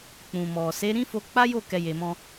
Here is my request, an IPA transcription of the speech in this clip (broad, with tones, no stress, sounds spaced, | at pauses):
k͡p ũ˨ m ɔ˨ s e˨˦ ɾ ĩ˦ f o˧ k͡p a˦ j o˦˨ k ɛ˧ j e˨ m ɔ̃˧